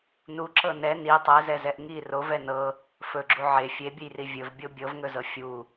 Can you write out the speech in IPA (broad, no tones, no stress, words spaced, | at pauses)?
nu ǁɤnɛ ni tˤɛzɛzɛʔ ŋi rovɛ nɤ | fɵɡ͡ǁu ʕe fʲebʲɵjri vʲɵvbʲo bʲɤvŋɵzɤ fʲu